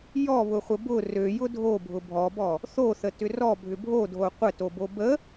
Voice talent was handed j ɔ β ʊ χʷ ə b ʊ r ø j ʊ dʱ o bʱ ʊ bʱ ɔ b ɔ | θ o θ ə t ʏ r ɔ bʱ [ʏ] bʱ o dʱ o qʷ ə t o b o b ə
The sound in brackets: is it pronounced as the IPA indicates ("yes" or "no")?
yes